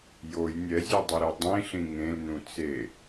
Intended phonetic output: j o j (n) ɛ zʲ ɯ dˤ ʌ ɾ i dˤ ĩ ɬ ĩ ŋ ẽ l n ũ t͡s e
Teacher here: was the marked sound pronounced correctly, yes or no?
no